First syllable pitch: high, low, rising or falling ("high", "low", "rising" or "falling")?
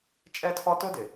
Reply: high